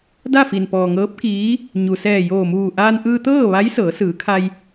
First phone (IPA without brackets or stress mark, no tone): d